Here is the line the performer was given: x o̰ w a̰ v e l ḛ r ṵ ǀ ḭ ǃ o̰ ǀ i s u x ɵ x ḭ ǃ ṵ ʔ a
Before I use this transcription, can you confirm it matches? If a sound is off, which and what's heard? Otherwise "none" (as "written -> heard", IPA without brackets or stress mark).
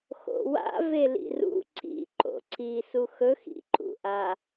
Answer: ḛ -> ḭ